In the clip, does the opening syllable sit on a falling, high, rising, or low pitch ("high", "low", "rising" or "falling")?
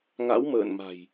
rising